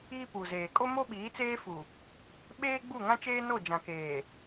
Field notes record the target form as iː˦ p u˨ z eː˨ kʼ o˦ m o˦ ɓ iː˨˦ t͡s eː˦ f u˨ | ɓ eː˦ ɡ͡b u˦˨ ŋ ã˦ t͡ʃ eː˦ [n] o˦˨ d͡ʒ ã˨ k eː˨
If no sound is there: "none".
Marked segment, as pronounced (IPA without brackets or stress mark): n